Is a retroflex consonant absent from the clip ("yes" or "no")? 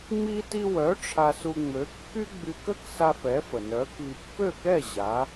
no